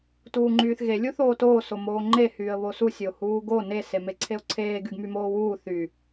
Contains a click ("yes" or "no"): yes